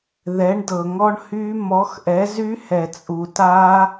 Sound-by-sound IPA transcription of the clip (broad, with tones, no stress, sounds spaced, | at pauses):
ð ɛ˨˥ ɳ d ɤ˨ ŋ ɔ˦˥ ɳ h y˦˥ m ɔ˨˥ x ʔ ɛ˨˥ z y˦˥ h ɛ˨ t͡sʼ u˨ t a˦˥